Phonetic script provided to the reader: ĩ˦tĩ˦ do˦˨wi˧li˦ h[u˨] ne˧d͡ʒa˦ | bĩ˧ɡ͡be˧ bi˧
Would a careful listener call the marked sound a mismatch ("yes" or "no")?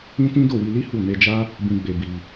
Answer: yes